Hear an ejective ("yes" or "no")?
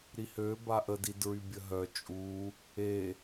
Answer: yes